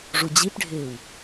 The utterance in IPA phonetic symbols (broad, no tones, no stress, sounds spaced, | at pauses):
ʐ u d͡ʑ i p ɖʱ ɪː w